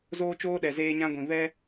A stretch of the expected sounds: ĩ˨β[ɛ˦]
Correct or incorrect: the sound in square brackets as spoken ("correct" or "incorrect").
correct